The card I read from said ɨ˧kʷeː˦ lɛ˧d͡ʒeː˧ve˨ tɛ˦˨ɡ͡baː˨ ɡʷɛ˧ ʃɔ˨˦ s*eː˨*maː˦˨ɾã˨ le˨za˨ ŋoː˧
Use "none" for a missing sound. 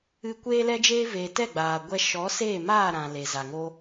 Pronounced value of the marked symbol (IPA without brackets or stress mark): eː˦˨